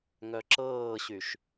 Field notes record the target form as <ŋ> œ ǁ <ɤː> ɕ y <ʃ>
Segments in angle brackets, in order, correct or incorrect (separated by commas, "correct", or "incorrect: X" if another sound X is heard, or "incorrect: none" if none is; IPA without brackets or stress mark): correct, correct, correct